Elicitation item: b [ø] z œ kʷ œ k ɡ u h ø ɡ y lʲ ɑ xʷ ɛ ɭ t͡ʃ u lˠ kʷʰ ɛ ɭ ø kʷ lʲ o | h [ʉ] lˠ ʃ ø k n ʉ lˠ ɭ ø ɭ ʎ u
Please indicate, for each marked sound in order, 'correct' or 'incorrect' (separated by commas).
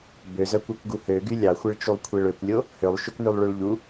correct, incorrect